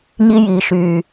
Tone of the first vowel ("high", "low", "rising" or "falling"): high